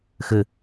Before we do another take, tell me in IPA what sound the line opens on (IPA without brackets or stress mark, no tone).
x